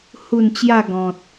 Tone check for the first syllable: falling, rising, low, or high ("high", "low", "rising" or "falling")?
low